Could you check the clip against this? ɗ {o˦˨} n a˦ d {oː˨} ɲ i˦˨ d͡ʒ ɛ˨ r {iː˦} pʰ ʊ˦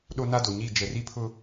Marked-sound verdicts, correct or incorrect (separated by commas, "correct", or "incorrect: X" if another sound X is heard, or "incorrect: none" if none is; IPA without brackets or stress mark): incorrect: o˦, incorrect: o˨, incorrect: i˦